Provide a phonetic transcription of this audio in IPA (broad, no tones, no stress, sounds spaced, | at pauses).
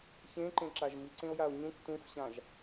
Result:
ç ẽ ǃ ẽ ǁ a ʒ m i ǀ ẽ o̯ j a o̯ ɲ ũ k t ũ f ɕ ã ʒ